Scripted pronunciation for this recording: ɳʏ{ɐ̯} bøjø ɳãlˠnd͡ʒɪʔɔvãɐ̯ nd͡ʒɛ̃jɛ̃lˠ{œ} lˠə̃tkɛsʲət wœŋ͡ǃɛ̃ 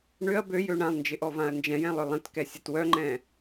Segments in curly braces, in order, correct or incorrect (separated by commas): correct, correct